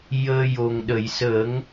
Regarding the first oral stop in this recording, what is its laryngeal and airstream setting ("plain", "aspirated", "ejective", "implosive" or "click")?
implosive